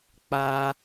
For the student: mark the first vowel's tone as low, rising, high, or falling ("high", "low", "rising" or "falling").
high